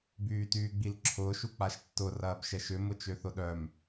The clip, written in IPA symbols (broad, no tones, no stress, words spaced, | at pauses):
byːtyːɡ͡bilǁʰʊːʃ uk͡paʃtːʊ rɐːbʃɛʃʏ mʊt͡ʃøθʊɗœm